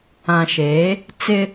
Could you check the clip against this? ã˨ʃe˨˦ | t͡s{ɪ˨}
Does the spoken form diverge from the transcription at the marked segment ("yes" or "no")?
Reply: yes